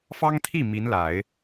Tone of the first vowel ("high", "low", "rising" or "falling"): high